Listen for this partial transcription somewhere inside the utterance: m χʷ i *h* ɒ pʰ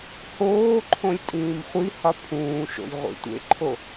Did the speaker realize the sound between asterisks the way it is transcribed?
yes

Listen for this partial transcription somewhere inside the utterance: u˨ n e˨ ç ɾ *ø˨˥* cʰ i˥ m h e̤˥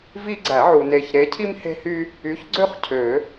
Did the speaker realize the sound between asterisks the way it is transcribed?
no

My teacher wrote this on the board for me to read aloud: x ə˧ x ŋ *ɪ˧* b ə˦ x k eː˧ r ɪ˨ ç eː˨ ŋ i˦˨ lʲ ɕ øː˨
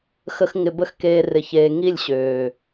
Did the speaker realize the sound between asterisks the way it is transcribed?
yes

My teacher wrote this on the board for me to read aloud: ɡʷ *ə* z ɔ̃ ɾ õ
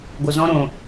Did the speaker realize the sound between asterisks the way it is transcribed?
yes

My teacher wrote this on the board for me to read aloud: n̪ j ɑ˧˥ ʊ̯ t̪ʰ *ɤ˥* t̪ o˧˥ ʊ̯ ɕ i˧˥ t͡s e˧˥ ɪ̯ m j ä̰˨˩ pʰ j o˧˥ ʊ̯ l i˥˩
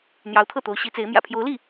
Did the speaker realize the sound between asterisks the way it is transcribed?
no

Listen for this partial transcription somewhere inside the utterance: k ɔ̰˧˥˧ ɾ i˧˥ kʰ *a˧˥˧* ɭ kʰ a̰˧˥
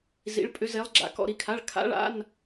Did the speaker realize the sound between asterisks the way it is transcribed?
yes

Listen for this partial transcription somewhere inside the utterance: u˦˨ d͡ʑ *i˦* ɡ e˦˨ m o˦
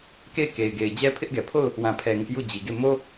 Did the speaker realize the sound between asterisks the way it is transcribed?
no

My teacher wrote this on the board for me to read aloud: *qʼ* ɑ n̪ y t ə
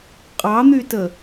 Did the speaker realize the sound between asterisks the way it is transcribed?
yes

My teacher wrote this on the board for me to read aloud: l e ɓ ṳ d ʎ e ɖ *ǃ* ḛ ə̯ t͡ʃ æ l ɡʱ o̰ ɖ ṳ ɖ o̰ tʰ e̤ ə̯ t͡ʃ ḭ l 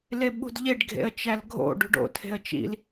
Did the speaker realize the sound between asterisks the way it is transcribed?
no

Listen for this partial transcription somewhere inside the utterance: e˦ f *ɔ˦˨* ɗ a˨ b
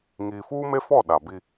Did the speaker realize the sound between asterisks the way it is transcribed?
yes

